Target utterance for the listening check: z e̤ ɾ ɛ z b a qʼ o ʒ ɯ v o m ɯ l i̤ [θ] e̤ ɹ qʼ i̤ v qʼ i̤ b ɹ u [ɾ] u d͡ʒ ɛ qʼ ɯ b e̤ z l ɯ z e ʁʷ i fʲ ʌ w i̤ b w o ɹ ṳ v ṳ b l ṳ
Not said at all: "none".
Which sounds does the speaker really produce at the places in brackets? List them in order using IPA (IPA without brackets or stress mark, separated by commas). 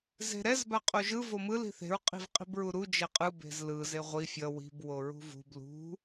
θ, ɾ